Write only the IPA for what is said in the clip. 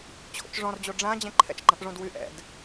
t͡ɕʰ o̰ t͡ʃ ʐ ɔ̃ r d͡ʑ o ɖ͡ʐ ã d͡ʑ ɛ̃ ǃʰ ɛ̰ t͡ʃ ɡ͡ǃ ã ʔ ʐ õ d w y ʔ ɛ̰ d

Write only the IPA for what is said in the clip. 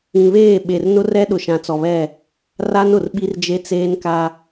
ĩ˨ β eː˦˨ ɓ e˨ r n ʊ˦ r ɛ˦ ɗ ʊ˨ ʃ ã˨ t͡s ɔ˨ β ɛ˦˨ | r a˦ n ʊ˨ r ɓ i˦ r d͡ʒ e˦ t͡s eː˦ n k a˦

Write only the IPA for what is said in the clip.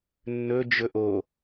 nː ɵ d͡ʒ ɵ ʔ o

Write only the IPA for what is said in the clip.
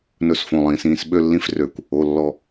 n ɵ˥˧ s f õ˩˧˩ lˠ ĩː˧˩˧ s ĩː˥˧ s ɓ ø˥˧ lː ĩ˥˧ f r ø˧˩˧ kʷ | o˩˧˩ lː ɔ˥˧

